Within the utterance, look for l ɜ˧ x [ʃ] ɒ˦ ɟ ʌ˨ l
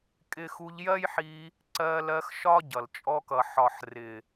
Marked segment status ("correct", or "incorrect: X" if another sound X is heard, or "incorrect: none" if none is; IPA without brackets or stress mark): correct